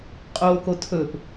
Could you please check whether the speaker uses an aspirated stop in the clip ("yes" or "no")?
yes